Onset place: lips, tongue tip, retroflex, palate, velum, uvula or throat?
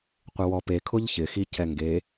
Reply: uvula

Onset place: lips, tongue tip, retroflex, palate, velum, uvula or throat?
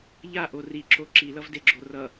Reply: palate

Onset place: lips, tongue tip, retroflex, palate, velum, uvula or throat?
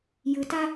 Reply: palate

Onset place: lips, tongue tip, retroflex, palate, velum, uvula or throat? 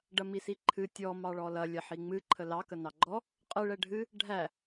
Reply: retroflex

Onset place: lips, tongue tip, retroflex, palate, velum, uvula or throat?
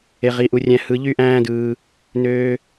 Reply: uvula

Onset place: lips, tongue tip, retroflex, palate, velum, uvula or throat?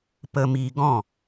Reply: lips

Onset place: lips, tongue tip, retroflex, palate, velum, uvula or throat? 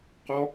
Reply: uvula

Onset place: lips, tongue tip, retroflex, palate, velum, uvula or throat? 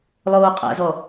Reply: tongue tip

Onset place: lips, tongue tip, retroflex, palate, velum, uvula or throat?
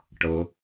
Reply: retroflex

